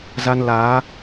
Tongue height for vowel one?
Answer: low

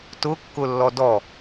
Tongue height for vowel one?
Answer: high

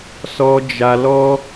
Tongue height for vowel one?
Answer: mid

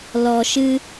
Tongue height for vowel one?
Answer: mid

